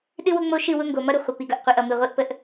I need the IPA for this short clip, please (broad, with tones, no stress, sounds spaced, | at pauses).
ɗ ɨ˦ w ʊ˦ ŋ͡m o˦ ʃ ɨ˦˨ w ʊ˦ ŋ ɡ o˨ m ʌ˦ ɾ ʊ˨ χʷ ə˨ p i˨ ɡ ʌ˨ ʔ qʷ i˨ ʔ ʌ˨ m ɨ˨ ʁʷ i˦ ʔ p ə˦ ʔ